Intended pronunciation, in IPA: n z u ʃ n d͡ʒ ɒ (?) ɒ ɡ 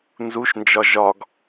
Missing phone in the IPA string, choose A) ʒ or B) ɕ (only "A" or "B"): A